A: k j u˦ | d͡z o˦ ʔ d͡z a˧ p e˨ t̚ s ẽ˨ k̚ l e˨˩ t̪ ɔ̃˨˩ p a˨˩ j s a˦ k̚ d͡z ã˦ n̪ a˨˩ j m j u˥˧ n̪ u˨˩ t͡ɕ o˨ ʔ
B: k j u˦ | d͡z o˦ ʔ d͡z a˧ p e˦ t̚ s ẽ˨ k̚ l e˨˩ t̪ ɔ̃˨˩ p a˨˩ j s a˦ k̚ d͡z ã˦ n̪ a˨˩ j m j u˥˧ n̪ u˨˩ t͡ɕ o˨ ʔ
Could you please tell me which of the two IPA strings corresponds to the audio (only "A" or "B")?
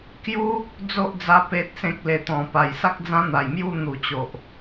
A